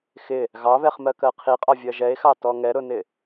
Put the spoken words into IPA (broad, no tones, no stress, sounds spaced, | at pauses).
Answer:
x ɪ | ɣ ɑ β ɛ χ m ɜ k ɜ qʰ i qʼ ɒ vʲ ɜ ʒ ɛ e̯ x ɑ t ɔ ŋ ɛ ɾ ʊ n ɪ